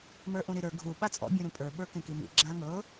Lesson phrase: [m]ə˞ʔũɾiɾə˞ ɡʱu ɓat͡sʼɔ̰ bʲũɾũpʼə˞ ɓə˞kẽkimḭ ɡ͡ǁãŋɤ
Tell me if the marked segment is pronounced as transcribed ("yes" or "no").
yes